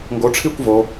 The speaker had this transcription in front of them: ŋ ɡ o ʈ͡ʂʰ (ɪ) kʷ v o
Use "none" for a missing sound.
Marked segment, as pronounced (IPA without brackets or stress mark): i